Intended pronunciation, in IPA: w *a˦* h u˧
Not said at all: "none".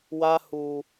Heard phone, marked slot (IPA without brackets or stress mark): a˦